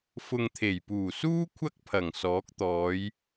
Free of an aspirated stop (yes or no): no